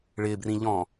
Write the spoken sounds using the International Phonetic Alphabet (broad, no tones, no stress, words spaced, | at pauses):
ɭɪbrĩʎɔ̃